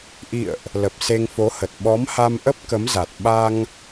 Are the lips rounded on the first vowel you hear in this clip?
no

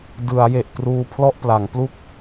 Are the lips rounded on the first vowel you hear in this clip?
no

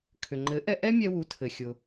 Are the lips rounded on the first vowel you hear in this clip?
yes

